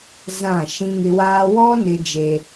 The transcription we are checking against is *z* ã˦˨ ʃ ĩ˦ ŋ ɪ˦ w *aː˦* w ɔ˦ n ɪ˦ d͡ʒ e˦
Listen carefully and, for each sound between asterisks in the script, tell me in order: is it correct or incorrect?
correct, correct

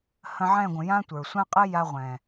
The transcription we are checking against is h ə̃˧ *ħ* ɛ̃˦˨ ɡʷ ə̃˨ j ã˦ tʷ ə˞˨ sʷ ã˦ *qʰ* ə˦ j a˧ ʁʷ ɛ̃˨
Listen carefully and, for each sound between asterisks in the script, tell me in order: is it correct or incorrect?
incorrect: ʕ, incorrect: qʼ

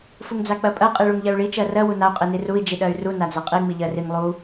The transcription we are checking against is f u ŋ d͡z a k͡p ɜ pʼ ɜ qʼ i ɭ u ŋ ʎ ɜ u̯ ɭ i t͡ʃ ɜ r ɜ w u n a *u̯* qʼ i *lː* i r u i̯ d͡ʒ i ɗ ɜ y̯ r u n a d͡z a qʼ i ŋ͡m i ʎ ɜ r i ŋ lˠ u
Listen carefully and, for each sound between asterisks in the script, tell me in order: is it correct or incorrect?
correct, incorrect: n

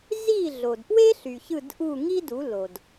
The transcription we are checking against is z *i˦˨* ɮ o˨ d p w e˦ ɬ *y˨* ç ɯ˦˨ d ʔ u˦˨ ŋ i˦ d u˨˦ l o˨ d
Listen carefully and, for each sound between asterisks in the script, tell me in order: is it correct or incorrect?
correct, correct

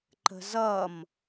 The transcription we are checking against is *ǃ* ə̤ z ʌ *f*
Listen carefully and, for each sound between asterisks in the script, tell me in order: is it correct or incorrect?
correct, incorrect: m

